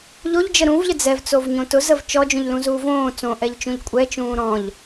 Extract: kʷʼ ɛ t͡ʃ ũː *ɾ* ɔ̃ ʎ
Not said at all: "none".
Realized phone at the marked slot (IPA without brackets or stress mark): ɾ